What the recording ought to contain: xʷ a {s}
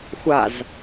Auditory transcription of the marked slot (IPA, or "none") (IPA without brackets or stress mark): z